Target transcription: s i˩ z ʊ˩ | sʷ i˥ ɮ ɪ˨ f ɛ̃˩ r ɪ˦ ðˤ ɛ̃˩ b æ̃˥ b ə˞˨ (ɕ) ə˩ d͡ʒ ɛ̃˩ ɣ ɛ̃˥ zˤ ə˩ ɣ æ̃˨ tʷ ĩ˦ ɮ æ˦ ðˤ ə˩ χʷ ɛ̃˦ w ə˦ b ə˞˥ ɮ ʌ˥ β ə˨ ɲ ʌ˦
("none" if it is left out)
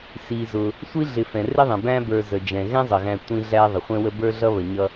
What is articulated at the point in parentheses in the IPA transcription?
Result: z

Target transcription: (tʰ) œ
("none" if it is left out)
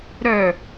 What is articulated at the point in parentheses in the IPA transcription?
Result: ɾ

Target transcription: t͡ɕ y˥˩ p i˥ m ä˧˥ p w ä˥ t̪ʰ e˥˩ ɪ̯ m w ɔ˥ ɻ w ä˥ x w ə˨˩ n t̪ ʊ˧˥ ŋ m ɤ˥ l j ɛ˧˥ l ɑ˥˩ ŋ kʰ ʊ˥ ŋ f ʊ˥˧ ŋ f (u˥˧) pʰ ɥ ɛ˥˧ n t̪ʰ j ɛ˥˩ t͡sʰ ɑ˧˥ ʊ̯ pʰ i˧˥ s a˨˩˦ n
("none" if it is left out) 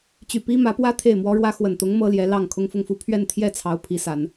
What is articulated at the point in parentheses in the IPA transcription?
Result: u˥˧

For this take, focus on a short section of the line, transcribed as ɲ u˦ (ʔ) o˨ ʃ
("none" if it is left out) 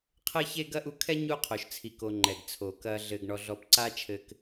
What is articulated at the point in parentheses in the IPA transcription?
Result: qʰ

